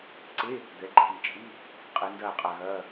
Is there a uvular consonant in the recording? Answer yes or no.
yes